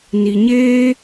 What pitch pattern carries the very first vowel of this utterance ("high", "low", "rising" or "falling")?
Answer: low